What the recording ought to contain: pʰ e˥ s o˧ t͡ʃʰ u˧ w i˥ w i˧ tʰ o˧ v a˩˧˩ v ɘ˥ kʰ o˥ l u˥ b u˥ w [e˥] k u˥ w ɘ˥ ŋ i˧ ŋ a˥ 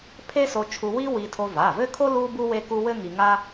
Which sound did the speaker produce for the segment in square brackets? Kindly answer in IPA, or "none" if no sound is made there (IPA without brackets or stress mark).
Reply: e˥